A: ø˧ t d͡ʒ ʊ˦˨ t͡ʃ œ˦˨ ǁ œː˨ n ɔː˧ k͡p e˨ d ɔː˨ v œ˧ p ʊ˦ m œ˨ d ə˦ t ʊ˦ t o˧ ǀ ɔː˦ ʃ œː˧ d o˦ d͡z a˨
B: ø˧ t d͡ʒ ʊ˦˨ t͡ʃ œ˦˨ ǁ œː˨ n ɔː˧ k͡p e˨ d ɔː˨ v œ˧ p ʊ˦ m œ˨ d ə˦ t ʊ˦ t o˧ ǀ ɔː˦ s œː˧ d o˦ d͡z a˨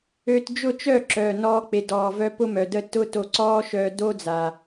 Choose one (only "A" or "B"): A